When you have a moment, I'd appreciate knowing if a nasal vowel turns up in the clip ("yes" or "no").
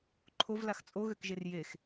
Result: no